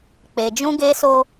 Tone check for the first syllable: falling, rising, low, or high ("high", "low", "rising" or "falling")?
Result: low